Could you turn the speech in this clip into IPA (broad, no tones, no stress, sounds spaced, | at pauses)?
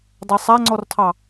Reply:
dˤ a sˤ a ŋ͡ǀ ɔ r tʰ ɑ